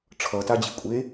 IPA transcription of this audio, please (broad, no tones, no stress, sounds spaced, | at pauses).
ʈ͡ʂʰ ʌ t a d͡ʑ i kʷʼ e